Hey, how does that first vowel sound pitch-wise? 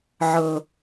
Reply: high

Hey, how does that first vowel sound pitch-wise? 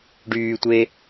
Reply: low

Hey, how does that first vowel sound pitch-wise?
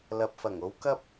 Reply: low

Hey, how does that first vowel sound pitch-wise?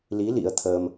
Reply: rising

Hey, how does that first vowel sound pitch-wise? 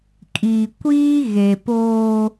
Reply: low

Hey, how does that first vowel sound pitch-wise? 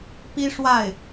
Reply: high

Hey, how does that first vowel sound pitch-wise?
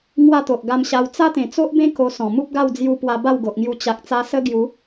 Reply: falling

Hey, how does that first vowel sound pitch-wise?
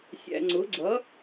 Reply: low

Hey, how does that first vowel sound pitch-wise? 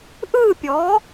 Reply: falling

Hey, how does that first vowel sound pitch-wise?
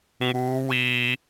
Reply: high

